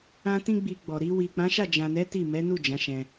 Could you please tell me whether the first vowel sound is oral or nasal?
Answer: nasal